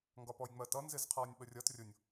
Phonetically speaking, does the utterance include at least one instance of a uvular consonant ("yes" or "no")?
yes